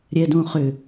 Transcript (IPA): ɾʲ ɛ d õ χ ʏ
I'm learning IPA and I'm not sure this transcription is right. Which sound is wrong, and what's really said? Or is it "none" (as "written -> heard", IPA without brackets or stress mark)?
none